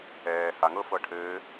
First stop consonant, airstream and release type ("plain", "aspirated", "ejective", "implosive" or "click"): aspirated